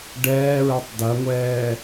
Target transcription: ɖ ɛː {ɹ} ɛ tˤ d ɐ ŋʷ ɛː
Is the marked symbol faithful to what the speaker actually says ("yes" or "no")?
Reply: yes